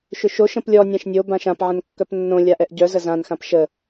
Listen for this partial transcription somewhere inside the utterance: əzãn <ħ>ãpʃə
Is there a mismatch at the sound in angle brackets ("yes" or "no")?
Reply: yes